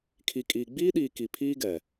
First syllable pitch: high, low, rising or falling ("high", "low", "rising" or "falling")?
low